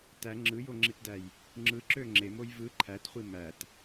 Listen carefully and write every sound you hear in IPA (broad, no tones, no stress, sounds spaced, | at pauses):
t æ ŋ͡ǁ ɯ j o ŋ͡ǁ i t d æ j | ŋ͡ǁ ɯ ǁ ø ŋ͡ǁ e m o j v ɯ ǃʰ æ t χʷ i m æ t